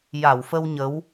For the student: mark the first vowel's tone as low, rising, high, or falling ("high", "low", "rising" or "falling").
low